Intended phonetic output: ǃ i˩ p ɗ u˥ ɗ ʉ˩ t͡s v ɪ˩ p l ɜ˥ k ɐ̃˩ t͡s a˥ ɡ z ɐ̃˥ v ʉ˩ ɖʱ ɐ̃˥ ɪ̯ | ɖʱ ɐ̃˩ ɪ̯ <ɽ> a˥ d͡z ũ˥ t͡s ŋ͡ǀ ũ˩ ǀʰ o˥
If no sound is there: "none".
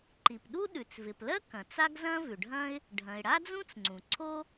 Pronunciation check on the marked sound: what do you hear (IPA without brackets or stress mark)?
ɽ